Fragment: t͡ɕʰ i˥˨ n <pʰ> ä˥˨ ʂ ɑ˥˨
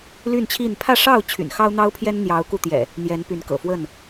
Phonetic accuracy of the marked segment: correct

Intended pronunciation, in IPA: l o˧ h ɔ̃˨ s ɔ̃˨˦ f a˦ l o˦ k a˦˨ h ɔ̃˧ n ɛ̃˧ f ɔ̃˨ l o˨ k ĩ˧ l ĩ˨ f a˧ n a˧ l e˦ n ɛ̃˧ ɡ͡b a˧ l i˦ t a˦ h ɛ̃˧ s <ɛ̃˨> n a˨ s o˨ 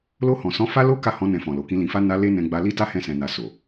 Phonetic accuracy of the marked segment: correct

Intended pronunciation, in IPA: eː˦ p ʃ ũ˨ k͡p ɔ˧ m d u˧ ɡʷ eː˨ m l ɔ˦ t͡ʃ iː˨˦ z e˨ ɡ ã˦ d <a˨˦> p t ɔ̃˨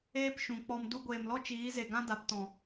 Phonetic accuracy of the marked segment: correct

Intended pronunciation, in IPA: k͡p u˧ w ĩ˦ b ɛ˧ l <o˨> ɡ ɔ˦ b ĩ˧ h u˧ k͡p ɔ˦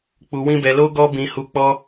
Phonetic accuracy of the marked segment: incorrect: o˦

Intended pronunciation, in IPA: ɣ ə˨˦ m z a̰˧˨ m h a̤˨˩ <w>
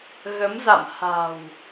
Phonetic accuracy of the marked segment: correct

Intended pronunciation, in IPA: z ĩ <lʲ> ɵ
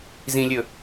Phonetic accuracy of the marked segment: correct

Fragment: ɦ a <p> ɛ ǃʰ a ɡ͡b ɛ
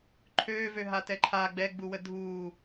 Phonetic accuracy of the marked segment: incorrect: t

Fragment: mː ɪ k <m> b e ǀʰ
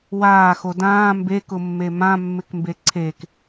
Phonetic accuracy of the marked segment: correct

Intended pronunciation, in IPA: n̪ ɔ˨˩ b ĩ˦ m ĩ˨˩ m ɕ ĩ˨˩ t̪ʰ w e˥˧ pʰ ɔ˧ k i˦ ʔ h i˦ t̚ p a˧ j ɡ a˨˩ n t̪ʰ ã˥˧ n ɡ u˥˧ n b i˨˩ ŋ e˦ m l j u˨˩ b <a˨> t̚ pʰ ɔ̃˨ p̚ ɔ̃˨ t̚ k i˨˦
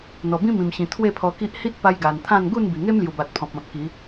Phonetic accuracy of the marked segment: correct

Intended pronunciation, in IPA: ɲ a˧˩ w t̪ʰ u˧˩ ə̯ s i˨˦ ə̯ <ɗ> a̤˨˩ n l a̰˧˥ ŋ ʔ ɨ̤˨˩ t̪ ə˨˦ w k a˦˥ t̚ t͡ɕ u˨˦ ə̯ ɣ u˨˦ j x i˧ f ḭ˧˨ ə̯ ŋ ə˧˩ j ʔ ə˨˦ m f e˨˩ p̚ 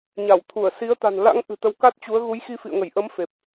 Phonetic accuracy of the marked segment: incorrect: t̪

